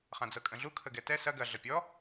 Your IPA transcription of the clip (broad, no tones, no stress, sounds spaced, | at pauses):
χ ã d͡z ɤ kʼ ə̃ ɮ u kʰ ə ɡ ɛ t ɛ s ɐ ɡ ɐ ɮ ə pʲ ɔ